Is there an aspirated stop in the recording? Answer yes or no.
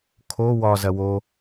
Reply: yes